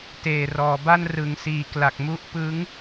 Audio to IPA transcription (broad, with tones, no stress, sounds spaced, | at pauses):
t eː˨˩ r ɔː˩˦ b a˥˩ n r ɯ˩˦ ŋ s iː˩˦ k l a˨˩ k̚ m u˦˥ ʔ p ɯ˦˥ ŋ